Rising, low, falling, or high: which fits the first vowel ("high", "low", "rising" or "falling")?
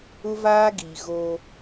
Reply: high